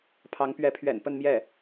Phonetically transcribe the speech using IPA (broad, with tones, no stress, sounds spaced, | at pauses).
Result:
pʰ ɑ˧˥ ŋ p ɥ ɛ˧˥ pʰ ɥ ɛ̰˨˩ n p ə˥˧ n m j ɛ˥˩